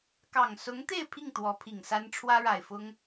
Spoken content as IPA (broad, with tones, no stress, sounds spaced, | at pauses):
k ɑ˨˩ ŋ s ʊ˧˥ ŋ t̪ e˥˧ ɪ̯ pʰ i˥˩ ŋ t̪ w ɔ˧˥ pʰ i˨˩ ŋ s a˥ n ʈ͡ʂʰ w ä˥ ɻ a˨˩ ɪ̯ f ʊ˥ ŋ